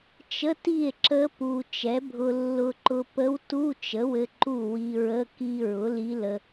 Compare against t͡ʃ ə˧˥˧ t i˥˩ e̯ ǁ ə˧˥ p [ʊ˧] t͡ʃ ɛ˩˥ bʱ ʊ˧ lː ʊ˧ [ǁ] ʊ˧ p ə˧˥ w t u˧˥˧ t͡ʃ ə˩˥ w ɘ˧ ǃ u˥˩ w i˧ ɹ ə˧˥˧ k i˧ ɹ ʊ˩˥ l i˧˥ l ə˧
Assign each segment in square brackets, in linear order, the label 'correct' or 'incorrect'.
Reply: incorrect: u˧, incorrect: ǃ

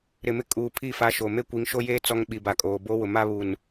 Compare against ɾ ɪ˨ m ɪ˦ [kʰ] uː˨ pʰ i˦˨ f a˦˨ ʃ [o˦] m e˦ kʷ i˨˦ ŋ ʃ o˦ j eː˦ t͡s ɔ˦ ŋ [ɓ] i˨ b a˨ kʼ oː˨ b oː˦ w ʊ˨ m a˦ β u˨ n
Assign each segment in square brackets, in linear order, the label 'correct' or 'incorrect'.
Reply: incorrect: kʼ, incorrect: o˨, correct

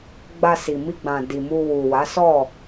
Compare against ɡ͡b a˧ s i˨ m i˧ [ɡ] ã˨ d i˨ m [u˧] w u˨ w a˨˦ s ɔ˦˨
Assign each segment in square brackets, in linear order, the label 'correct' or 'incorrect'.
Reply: incorrect: ɡ͡b, correct

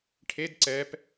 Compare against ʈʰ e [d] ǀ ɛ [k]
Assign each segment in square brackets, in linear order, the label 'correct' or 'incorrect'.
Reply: correct, incorrect: p

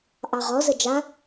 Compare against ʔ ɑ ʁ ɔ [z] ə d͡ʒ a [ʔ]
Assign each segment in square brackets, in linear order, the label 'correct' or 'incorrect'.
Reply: correct, incorrect: none

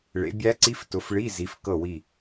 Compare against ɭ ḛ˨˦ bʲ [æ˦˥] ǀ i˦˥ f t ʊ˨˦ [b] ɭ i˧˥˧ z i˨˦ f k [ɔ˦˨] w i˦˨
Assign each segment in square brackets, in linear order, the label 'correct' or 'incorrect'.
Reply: correct, incorrect: f, incorrect: ɤ˦˨

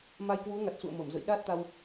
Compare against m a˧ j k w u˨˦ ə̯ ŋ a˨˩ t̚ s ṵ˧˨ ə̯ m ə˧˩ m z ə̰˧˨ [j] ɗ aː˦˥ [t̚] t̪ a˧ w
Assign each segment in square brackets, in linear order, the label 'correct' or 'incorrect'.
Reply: correct, correct

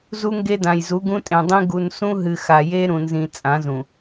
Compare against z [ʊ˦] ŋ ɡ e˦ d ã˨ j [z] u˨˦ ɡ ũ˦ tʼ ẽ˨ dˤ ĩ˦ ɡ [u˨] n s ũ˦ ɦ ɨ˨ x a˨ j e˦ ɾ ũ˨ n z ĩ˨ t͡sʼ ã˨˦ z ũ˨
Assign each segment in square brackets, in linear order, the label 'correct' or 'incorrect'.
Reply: incorrect: u˦, correct, correct

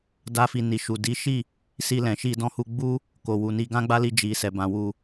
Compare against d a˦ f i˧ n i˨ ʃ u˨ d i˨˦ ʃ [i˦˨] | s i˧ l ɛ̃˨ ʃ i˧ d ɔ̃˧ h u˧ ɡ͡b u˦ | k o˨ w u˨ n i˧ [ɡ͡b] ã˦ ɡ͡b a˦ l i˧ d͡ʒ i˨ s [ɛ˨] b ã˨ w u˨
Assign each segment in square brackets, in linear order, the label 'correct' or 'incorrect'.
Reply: correct, incorrect: ɡ, correct

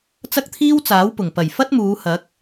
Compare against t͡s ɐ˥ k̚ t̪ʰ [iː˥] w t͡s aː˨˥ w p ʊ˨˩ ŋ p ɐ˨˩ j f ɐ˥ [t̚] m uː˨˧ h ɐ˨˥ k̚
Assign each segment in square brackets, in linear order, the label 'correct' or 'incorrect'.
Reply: correct, correct

